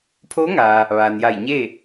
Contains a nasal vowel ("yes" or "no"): no